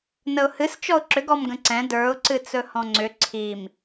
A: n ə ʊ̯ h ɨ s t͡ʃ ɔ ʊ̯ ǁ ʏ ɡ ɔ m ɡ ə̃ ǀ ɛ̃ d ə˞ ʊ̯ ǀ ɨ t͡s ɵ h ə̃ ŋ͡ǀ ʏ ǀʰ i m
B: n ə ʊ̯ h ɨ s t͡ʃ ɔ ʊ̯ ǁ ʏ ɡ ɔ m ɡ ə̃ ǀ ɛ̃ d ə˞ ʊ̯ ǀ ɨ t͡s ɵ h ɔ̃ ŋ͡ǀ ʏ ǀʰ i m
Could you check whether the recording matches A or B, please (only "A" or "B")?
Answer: B